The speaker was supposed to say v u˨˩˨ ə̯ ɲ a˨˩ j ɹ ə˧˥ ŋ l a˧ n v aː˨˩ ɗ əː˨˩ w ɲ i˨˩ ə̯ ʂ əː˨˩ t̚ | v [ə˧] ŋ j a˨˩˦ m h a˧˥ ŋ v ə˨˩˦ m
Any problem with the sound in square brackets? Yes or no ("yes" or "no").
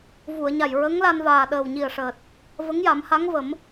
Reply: yes